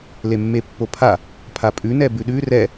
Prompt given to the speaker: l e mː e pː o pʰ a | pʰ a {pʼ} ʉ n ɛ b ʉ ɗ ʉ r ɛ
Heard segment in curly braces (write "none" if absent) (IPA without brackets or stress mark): pʼ